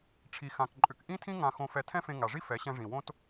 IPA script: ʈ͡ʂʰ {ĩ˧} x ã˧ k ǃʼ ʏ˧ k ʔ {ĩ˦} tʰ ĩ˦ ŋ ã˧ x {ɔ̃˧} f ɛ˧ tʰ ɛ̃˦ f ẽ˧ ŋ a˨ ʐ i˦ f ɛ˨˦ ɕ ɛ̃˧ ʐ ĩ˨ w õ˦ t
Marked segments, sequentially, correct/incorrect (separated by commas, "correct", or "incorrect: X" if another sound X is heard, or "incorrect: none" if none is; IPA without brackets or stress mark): incorrect: i˧, correct, incorrect: õ˧